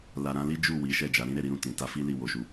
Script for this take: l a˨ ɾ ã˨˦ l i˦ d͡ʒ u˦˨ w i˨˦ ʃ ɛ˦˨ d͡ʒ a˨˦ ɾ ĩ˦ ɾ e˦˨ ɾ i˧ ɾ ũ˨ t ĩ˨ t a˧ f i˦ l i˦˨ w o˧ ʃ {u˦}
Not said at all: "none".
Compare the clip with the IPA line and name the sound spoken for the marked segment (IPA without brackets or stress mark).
u˧